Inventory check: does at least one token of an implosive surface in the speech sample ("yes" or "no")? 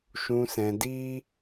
no